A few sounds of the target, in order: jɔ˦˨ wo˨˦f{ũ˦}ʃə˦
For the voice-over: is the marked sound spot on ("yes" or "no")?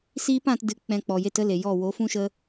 yes